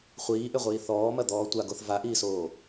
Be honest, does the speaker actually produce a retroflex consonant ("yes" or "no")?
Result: no